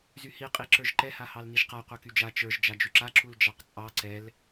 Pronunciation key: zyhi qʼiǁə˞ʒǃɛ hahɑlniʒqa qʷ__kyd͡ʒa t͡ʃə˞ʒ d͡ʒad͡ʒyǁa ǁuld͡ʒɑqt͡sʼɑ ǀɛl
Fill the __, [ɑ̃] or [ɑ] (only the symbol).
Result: ɑ